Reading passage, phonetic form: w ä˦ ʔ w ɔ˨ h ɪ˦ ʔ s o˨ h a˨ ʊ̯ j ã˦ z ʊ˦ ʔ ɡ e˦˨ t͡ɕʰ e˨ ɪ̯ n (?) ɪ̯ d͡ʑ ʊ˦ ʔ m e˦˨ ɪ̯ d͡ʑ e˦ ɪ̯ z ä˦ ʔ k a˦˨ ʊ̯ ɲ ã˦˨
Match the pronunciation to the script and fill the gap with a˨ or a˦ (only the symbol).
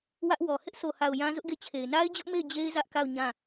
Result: a˦